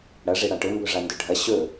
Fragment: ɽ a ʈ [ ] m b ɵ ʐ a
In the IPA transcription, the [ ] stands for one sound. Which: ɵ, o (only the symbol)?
ɵ